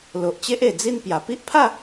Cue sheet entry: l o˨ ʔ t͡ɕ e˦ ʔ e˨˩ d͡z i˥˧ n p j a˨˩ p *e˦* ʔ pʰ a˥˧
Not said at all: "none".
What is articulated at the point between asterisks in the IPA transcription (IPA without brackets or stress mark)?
i˦